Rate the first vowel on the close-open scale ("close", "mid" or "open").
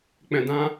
mid